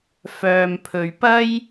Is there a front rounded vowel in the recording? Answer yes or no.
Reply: yes